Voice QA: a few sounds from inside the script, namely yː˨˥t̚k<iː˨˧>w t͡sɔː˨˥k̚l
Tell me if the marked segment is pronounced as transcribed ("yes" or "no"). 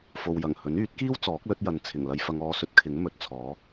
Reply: no